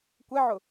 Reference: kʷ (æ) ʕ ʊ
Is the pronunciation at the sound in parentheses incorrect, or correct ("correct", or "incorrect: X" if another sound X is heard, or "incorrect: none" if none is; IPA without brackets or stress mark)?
incorrect: ɛ